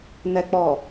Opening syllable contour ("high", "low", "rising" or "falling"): low